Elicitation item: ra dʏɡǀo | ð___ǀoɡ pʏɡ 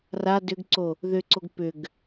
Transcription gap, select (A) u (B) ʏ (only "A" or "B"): B